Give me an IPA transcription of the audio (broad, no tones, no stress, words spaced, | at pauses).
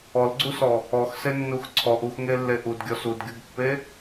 ɔlɡ͡ǀusɔ | ɔxsenːux ǀʰɔʔ uxŋelːe ʔudɡʲɔs udɡʲuɡpːe